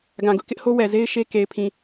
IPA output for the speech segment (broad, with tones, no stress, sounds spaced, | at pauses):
ɡ ã˨ ɡ ʊ˦ ʔ k ɪ˦ ʔ h o˦ w ɛ˨ z e˦ ɪ̯ ʃ e˦ k e˨ ɪ̯ pʰ ĩ˨